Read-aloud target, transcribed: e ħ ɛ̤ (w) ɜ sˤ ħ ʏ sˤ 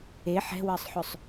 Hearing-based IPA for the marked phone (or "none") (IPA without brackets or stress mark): w